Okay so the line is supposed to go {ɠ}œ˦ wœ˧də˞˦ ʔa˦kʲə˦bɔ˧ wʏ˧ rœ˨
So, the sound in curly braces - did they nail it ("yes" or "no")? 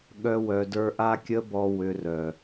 yes